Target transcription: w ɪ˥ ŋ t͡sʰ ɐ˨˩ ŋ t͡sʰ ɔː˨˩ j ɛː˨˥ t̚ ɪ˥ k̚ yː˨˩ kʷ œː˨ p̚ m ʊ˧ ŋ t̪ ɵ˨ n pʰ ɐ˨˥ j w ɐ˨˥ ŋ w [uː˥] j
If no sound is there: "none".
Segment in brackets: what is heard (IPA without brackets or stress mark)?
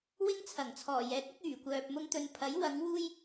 uː˥